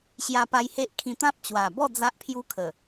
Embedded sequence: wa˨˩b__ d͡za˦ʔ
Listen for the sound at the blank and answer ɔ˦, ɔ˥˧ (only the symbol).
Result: ɔ˥˧